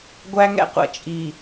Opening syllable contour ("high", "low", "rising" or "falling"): high